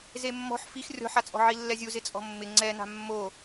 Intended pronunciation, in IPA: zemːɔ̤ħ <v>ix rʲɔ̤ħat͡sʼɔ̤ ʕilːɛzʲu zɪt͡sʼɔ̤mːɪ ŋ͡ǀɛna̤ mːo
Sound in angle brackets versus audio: incorrect: f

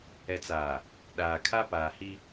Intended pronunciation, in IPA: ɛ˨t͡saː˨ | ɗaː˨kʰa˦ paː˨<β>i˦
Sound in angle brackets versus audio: incorrect: h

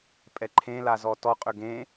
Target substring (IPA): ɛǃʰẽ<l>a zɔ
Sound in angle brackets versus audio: correct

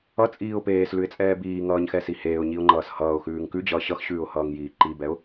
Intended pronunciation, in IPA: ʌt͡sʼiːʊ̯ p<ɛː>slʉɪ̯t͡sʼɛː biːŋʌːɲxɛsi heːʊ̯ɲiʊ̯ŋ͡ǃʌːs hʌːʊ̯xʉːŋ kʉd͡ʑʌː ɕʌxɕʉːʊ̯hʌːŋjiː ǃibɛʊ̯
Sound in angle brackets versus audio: incorrect: eː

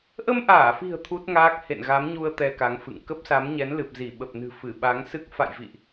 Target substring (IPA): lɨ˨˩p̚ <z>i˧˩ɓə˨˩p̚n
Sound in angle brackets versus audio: correct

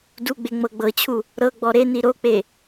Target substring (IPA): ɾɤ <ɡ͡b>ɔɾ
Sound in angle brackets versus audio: correct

